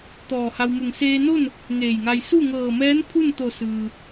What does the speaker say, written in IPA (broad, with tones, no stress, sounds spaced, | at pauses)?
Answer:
t̪ ɔː˧˩ h a˧ w m u˧˩ ŋ s eː˧ n o˥˨ n | ŋ eː˧˩ j ŋ a˧ j s u˥˨ ŋ ɤː˧˩ m ɛː˧˥ n pʰ u˥˨ n t̪ o˧˩ s ɯː˩